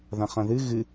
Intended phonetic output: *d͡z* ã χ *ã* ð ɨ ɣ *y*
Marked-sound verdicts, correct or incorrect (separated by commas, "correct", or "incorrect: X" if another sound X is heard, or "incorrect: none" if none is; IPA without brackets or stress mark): incorrect: ð, incorrect: ɐ̃, incorrect: ɨ